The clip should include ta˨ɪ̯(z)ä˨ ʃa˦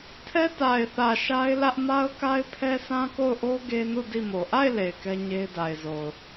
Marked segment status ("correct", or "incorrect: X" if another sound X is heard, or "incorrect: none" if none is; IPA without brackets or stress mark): incorrect: θ